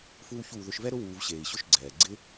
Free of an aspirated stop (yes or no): yes